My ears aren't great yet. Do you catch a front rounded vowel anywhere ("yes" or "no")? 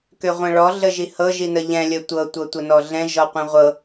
yes